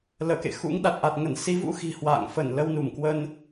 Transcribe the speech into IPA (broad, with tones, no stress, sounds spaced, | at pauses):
l əː˧˩ k ḛ˧˨ x ṵ˧˥ ŋ ɗ a˨˩ t̚ ʔ a˨˩ t̚ ŋ ə˧˩ n s i˨˦ v ṵ˧˥ x i̤˨˩ h w a̰ː˧˨ ŋ f ə˧˩ n l ə˧ w n u˧˩ m k w ə˧ n